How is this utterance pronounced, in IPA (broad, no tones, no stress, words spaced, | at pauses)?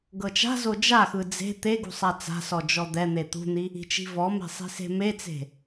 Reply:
ɡɤt͡ʃa̤zo d͡ʒaxɯ d͡ze̤ t̪e ɡṳsˤat͡sa̤sɔ d͡ʒɔd̪ɛn̪e t̪ṳn̪i | i̤t͡ʃi̤vɔme̤ sˤi̤se̤met͡se̤